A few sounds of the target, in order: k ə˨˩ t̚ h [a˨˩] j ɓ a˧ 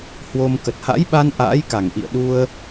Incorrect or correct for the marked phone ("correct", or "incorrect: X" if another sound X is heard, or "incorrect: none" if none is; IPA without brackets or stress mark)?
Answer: incorrect: a̰˧˥